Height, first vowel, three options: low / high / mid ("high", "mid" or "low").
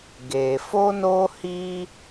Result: mid